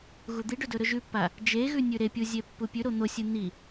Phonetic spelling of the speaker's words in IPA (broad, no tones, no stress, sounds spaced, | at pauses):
ɣ u d̪ i ɖ ɵ d ɵ ɾ ɵ ʒ ʉ pː a | d͡ʒ e ɣ ʉ nʲ ʉ ɾ e pʲ u zʲ e pː u pʲ ʉ ɾ o n̪ o sʲ ɨ n̪ i